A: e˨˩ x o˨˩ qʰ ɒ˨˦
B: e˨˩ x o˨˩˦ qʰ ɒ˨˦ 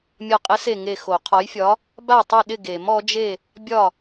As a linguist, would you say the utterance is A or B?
B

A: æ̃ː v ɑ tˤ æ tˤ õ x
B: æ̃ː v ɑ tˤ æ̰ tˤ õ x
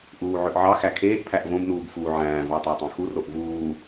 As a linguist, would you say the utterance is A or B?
A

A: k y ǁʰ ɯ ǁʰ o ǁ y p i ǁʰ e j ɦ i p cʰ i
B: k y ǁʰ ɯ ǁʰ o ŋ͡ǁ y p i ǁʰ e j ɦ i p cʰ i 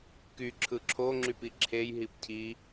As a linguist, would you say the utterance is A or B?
B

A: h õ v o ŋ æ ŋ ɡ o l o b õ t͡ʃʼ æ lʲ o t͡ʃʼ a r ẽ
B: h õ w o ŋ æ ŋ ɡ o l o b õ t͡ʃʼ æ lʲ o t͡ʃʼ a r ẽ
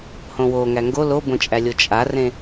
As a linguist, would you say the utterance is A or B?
B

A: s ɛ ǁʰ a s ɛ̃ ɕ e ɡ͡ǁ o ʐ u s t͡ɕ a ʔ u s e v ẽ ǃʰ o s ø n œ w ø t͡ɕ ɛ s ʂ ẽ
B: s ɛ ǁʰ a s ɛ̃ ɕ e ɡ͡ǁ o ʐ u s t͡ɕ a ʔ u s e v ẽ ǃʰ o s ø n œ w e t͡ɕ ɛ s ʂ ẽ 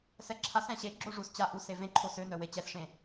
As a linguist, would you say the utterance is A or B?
B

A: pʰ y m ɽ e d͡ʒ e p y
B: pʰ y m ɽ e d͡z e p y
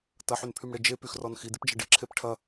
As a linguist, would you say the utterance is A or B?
A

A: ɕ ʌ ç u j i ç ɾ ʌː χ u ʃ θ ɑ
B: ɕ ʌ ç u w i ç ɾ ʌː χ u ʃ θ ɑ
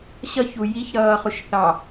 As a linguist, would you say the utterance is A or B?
A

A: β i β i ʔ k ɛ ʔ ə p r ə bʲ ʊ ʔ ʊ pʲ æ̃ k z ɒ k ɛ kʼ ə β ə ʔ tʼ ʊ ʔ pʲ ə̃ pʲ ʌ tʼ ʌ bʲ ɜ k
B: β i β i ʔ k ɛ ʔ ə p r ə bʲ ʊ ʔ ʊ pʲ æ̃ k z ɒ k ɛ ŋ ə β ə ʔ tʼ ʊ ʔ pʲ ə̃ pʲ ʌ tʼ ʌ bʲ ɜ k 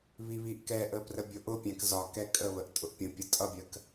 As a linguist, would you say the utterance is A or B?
A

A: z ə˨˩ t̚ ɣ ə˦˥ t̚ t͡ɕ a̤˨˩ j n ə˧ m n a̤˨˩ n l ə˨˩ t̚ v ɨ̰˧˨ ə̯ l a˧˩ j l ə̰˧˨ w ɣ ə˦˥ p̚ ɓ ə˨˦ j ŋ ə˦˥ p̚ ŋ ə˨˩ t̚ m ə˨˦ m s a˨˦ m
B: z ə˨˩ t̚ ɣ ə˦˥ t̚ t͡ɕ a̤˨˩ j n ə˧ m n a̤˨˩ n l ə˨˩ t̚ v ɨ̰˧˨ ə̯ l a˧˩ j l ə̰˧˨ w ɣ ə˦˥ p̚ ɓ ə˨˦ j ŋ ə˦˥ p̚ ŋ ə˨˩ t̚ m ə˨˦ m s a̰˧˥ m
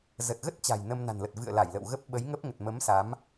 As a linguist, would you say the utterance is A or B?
A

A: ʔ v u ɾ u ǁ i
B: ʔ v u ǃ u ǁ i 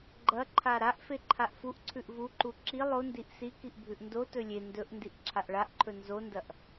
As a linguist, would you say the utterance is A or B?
B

